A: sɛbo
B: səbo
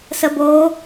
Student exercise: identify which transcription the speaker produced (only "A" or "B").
B